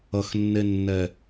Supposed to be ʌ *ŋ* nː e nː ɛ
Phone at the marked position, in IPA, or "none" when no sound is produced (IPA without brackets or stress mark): x